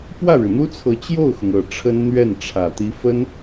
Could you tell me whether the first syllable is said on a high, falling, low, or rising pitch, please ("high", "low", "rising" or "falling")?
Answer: falling